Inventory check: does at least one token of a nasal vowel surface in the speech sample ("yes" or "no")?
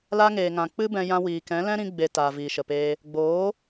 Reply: yes